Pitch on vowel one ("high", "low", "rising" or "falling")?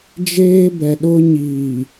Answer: high